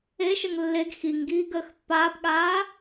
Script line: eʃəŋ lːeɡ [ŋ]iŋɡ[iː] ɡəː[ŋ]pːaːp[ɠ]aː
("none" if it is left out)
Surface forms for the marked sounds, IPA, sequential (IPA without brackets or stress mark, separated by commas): x, iː, x, ɠ